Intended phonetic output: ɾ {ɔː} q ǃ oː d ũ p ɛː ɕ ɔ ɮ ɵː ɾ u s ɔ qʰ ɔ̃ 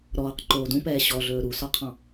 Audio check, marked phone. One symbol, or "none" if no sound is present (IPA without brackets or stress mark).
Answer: ɔː